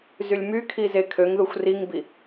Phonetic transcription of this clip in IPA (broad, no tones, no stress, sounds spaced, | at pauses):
z y lʲ m y kʰ i z e kʰ ø ŋ ð u xʷ r i ŋ b i